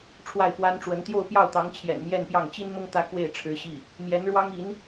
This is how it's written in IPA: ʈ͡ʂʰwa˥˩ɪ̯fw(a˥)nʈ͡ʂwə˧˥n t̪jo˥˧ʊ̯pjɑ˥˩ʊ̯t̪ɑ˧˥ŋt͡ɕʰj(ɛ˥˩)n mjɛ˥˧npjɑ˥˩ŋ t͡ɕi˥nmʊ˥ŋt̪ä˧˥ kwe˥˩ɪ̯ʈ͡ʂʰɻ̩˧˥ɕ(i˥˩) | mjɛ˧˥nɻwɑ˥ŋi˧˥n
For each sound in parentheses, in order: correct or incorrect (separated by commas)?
correct, incorrect, correct